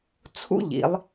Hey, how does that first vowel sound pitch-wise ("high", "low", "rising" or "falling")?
high